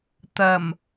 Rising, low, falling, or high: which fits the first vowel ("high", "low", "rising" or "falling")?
low